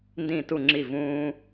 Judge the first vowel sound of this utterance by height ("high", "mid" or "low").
high